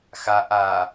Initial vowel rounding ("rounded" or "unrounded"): unrounded